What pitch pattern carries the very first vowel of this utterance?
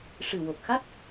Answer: low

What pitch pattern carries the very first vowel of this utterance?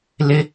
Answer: high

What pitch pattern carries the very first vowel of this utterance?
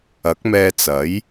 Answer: rising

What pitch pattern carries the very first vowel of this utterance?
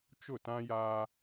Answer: falling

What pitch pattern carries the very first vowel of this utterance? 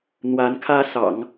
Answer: rising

